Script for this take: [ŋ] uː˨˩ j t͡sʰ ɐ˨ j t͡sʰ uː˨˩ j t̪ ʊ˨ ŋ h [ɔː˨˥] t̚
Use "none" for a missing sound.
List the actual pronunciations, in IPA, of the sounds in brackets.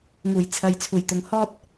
ŋ, ɔː˥

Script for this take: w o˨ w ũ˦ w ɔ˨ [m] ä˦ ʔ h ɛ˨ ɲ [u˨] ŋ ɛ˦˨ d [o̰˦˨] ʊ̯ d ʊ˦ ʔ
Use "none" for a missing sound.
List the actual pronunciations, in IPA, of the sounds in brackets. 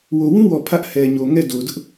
pʰ, o˨, o˨

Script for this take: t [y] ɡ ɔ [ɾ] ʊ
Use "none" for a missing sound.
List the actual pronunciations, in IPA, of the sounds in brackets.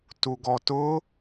u, t

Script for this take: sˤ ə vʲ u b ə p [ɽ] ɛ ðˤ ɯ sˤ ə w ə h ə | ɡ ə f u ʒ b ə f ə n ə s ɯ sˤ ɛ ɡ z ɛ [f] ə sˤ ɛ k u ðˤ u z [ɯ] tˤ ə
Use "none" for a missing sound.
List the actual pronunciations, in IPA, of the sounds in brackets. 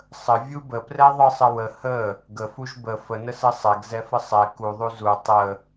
r, f, u

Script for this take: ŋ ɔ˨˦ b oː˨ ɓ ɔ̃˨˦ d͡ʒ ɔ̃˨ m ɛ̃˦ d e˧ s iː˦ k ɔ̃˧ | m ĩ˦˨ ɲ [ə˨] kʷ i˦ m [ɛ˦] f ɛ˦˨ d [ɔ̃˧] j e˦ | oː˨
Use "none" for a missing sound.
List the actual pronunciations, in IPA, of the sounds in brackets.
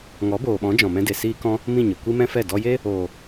ə˨, ɛ̃˦, ɔ˧

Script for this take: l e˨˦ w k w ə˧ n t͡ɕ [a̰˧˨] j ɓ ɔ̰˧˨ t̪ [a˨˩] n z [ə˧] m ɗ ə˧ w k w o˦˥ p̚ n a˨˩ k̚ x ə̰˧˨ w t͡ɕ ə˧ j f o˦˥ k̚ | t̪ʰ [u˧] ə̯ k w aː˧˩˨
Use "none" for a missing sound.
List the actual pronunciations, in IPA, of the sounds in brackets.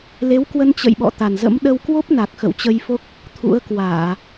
ə̰˧˨, a˨˩, ə̰˧˥, ṵ˧˥

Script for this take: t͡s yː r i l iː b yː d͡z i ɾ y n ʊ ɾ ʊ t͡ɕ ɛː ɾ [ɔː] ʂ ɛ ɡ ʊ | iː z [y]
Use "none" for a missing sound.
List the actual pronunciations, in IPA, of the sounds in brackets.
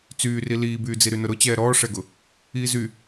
ɔː, y

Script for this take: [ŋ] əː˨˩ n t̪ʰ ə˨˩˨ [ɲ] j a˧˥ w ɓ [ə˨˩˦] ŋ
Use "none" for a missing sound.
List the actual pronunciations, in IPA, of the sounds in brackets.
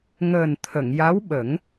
ŋ, ŋ, ə˨˩˦

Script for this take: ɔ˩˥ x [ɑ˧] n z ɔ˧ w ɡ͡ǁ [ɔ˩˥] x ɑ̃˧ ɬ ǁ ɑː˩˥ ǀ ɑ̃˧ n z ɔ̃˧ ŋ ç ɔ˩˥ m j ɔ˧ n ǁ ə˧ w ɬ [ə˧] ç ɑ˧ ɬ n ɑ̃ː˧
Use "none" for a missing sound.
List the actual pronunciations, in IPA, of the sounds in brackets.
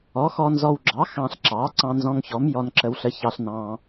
ɔ˧, ɑ˩˥, ə˧

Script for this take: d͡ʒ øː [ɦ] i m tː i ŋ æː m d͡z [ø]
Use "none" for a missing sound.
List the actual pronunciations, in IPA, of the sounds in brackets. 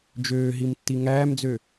ɦ, ø

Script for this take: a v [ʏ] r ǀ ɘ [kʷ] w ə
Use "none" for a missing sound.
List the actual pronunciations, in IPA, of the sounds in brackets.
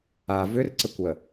ʏ, kʷ

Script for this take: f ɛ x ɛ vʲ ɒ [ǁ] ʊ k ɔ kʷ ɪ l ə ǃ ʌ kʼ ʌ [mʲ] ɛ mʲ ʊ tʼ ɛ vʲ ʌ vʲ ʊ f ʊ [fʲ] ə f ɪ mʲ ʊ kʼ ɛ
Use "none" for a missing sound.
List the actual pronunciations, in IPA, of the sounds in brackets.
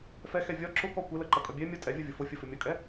ǁ, bʲ, fʲ

